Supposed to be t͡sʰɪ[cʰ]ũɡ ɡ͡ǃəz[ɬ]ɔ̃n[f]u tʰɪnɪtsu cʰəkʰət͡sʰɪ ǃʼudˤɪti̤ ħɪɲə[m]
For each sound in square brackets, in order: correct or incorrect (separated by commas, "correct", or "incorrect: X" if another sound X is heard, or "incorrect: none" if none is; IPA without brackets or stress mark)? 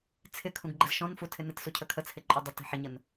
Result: incorrect: kʰ, incorrect: ʃ, correct, incorrect: n